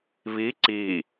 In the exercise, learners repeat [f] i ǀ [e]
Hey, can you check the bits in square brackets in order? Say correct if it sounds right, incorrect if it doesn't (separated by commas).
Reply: incorrect, incorrect